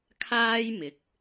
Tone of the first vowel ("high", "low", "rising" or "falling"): high